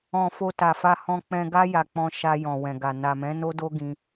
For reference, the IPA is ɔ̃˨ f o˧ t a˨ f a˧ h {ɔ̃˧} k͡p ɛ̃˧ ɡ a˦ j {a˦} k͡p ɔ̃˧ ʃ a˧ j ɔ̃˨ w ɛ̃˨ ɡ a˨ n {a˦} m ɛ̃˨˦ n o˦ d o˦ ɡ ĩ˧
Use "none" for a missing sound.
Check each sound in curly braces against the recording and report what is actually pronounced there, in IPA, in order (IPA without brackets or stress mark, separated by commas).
ɔ̃˧, a˧, a˨